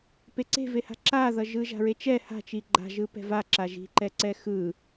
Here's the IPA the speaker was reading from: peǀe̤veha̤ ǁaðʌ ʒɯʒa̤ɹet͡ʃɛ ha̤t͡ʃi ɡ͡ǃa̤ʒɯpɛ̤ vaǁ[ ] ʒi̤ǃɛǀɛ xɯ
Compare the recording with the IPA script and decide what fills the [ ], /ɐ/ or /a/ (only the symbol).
a